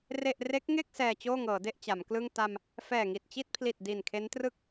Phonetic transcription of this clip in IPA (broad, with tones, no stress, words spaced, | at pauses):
re˥˩ʔ re˦˥k̚ŋe˥˩k̚ sɛː˧t͡ɕoː˥˩ŋɤː˩˦ de˥˩ʔt͡ɕa˩˦mklɯ˥˩ŋ ta˧m | fɛː˨˩ŋi˨˩t̚t͡ɕi˥˩t̚pʰli˨˩t̚ di˨˩nkʰe˦˥ntrɯ˥˩k̚